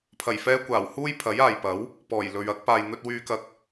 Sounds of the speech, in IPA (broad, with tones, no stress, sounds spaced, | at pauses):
pʰ ɐ˨˩ j f ɛː˧ kʷ aː˨˩ w h uː˥ j pʰ ɐ˨˥ j aː˨ j p ɐ˨˥ w | p ɔː˨˩ j l ɵ˨ ɥ ɐ˥ k̚ p aː˨ j n̪ ɵ˧ t̚ w yː˧ k ɐ˧ k̚